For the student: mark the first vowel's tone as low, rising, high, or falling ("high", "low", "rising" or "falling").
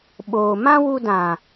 low